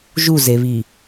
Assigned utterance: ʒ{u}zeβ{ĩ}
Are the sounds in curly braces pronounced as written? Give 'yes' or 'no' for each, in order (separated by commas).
yes, no